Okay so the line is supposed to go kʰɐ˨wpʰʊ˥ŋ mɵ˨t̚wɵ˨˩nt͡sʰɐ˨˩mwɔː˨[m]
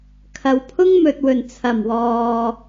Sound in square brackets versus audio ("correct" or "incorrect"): incorrect